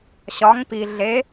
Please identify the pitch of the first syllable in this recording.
rising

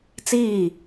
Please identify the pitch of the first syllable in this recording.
falling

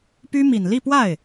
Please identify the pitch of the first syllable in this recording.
high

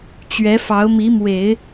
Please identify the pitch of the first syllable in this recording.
rising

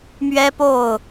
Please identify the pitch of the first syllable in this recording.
high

